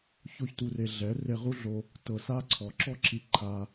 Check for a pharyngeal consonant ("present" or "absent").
absent